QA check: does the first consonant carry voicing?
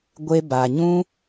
yes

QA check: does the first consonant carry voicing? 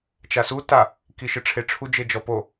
no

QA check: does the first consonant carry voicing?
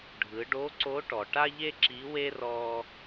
yes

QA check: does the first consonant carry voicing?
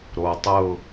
yes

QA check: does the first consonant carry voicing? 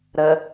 yes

